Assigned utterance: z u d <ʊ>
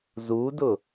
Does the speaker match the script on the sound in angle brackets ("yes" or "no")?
yes